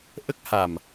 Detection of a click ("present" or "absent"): absent